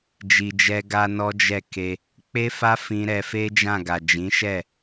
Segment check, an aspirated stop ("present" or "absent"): absent